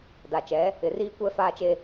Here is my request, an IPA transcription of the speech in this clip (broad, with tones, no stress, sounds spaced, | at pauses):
d a˨ t͡ʃ ɛ˨˦ | ɪ˨ r iː˦ kʷ ɛ˦ f aː˦ t͡ʃ e˦